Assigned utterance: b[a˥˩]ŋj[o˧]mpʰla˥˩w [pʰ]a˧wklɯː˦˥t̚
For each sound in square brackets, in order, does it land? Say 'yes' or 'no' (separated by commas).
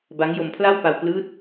no, yes, no